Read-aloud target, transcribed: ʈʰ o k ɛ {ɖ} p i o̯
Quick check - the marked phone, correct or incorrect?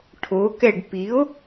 correct